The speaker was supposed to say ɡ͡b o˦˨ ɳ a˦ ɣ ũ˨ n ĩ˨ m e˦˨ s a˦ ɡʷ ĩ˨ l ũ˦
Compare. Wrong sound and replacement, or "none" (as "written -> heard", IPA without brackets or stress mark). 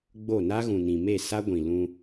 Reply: ɳ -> n